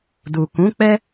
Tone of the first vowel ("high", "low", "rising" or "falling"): low